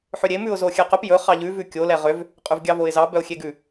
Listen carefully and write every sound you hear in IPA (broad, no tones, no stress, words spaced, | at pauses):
ħøɾʲem ʉʊ̯zoxʲɛqɵp jɵ χɑʎʉ vʉkʲo lɛʁøv | qʼʉvɡʲɑvoɪ̯zɑ bœʊ̯xʲeɡʉ